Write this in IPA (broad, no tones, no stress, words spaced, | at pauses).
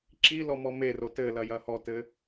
ǁi lɔmɔme rotɘlɐ jɐhɔtɘ